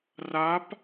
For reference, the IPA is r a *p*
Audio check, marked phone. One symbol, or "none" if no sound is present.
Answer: p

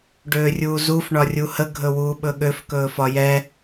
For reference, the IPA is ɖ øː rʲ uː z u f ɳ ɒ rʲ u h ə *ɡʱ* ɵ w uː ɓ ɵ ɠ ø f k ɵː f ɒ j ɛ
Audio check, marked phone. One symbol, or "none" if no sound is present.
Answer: ɡʱ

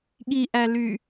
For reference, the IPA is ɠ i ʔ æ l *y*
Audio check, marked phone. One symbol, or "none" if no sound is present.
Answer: y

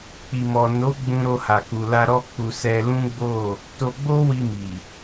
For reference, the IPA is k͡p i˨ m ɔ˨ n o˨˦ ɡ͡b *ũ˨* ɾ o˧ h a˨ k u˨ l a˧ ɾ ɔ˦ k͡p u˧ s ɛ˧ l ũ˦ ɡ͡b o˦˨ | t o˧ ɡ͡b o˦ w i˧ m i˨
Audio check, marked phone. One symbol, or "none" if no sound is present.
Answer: ũ˧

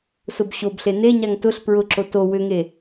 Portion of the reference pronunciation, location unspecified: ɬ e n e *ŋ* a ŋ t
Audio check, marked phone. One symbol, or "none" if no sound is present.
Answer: ɲ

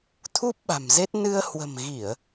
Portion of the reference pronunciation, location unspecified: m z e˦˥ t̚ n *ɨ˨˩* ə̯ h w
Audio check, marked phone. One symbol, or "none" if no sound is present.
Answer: ɨ˧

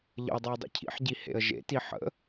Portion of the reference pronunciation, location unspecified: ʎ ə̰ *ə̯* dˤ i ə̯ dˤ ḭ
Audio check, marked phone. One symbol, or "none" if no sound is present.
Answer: ʊ̯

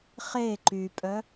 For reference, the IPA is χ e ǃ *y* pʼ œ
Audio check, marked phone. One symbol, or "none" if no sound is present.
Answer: y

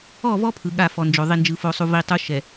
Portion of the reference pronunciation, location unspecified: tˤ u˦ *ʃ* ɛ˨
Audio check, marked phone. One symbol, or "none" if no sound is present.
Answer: ʃ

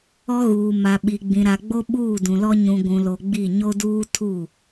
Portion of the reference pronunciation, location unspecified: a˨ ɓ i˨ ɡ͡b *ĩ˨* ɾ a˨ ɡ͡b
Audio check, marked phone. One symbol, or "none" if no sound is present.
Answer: ĩ˨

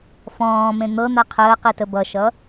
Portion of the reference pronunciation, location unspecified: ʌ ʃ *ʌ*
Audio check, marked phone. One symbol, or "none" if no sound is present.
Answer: ʌ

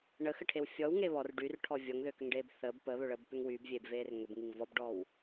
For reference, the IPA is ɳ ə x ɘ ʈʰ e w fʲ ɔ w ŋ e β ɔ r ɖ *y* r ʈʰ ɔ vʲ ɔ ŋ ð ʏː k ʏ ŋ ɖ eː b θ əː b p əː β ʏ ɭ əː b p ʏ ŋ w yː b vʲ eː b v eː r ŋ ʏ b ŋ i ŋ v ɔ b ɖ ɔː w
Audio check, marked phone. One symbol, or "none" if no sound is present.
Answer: y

